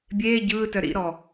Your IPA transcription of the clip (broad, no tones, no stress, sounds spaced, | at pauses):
bʲ eː ɟ ɯː t œ ɾ ḭ ɾ ɔ